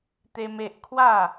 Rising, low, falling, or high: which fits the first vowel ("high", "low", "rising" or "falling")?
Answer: high